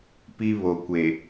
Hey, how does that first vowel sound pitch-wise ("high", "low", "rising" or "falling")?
high